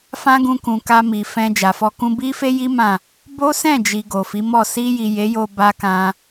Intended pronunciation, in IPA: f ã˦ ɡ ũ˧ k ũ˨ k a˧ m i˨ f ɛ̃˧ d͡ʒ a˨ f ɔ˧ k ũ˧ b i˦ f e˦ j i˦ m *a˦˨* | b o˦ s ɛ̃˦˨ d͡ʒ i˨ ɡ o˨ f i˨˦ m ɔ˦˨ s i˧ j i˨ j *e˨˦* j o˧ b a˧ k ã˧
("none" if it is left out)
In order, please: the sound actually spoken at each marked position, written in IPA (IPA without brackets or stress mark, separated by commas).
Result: ã˦˨, e˨˦